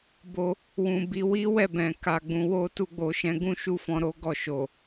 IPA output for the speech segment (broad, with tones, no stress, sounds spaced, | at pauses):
b o˧ | w ũ˨ b i˧ w i˦ w ɛ˦˨ b ɛ̃˨ k a˨ ɡ͡b ũ˧ w o˦ t u˧ ɡ͡b o˨ ʃ ɛ̃˨˦ ɡ ũ˧ ʃ u˦ f ɔ̃˦ ɾ o˦ ɡ ɔ˦˨ ʃ o˨